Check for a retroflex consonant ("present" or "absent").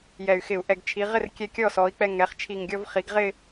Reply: absent